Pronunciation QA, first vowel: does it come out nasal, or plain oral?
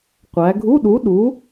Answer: oral